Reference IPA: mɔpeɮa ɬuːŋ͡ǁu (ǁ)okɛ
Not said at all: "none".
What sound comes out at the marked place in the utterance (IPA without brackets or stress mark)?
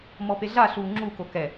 k